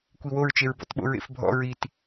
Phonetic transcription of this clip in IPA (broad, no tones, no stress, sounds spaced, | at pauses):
kʷ i w o ɹ t͡ʃ e ɹ b ɔ̰ t ɓ o̰ ɹ ḛ f bʱ ɔ̰ ɹ i t